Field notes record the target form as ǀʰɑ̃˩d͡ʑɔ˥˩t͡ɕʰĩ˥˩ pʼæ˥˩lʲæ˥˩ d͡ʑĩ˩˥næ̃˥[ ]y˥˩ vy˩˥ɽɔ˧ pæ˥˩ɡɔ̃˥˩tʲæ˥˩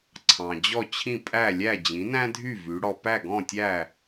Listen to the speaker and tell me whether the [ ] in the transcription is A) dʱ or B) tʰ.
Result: A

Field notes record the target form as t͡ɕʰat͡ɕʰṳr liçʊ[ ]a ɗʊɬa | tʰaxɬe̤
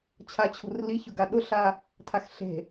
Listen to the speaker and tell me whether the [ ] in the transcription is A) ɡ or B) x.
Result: A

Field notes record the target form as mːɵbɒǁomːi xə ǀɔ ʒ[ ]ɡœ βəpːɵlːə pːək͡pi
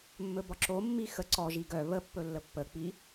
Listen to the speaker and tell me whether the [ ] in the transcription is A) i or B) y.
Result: A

